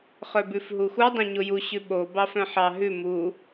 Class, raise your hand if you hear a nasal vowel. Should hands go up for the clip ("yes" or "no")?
yes